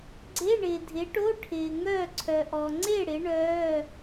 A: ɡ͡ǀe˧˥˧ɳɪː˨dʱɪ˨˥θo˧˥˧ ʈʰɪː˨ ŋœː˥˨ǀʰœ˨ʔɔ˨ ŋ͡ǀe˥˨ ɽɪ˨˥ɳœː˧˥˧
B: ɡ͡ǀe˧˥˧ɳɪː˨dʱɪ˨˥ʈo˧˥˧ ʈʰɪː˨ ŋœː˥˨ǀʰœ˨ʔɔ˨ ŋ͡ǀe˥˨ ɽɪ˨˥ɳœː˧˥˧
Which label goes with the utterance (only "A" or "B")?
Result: B